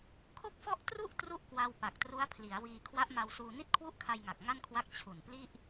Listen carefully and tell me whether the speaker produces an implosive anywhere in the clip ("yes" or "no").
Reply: no